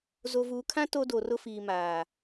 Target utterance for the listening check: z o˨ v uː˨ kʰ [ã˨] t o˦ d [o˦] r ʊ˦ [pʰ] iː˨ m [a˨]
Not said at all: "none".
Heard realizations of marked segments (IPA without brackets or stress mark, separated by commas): ã˦, o˨, f, aː˨